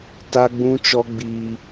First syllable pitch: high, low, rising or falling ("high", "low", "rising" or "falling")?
high